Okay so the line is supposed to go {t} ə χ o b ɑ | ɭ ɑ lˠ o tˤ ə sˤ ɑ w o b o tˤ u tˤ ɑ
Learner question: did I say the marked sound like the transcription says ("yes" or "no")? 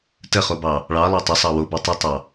yes